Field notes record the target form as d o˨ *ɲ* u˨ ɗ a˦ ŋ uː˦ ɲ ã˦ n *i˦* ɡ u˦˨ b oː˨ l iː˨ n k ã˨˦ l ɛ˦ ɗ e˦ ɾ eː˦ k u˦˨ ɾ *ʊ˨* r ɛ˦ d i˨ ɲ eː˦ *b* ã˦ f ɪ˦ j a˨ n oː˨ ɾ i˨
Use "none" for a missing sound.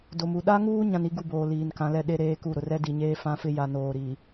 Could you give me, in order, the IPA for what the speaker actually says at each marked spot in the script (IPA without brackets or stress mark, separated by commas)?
m, i˦, ʊ˨, f